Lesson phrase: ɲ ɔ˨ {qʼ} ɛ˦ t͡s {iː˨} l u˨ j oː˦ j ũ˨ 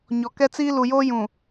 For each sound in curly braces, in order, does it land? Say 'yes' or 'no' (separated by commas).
no, no